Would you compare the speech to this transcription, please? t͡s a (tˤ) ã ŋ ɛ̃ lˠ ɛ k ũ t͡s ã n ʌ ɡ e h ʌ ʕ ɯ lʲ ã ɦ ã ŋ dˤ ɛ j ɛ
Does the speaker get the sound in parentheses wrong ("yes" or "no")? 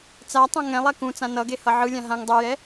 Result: no